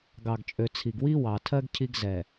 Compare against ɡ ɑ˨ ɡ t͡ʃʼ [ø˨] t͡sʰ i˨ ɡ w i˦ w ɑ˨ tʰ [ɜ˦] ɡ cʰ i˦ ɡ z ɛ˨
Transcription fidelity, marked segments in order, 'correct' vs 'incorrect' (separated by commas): correct, correct